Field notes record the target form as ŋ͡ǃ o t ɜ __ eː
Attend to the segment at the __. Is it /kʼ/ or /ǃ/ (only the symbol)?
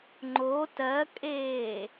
kʼ